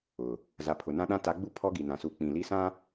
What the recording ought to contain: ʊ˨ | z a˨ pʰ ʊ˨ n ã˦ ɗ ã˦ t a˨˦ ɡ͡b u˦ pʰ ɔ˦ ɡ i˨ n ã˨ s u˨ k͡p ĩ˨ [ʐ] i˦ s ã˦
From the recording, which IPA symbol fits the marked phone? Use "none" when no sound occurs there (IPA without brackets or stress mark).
l